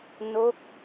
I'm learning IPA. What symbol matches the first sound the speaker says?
n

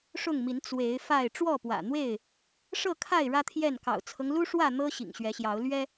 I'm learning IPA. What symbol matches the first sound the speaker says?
ʂ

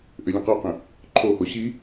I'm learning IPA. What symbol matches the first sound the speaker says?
ʔ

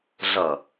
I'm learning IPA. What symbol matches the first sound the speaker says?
ɮ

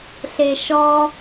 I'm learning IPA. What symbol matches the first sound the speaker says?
ɬ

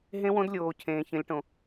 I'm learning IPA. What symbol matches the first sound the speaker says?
ɦ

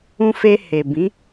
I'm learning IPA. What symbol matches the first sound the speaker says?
ũ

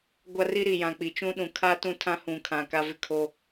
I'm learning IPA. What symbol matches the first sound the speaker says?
ɡʷ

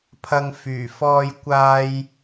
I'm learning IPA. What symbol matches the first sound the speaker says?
pʰ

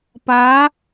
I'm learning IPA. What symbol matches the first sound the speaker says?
p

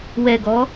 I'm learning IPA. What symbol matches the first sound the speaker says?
w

